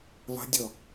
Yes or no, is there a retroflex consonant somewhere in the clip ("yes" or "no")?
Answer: no